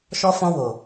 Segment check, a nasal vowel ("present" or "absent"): present